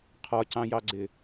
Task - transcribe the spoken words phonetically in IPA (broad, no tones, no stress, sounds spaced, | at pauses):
qʰ ɒ c ɑ̃ j ɑ ɡ͡ǀ ɪ